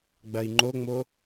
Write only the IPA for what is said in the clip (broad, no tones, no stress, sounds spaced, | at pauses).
ɡ͡b ɐ i̯ ŋ͡ǃ o ŋ͡m o